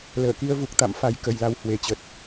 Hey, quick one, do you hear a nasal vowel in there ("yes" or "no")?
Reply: no